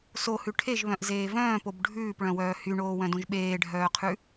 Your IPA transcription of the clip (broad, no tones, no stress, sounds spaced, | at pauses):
s o h ʉ ʈʰ e ʒ β œ̃ ʔ z eː v œ̃ː p o b ɖʱ ʉː p ɭ œ̃ w œː h y ɳ oː w œ̃ d õ ʒ ɓ eː ɖʱ œː qʰ ʉ